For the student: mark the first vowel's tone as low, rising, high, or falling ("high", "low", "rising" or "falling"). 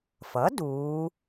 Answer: rising